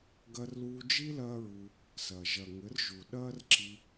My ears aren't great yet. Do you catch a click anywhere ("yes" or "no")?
yes